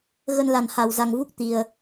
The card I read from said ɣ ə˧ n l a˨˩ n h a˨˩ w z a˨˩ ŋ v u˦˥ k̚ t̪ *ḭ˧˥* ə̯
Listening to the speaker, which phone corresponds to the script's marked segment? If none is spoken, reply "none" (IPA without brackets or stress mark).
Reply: i˨˩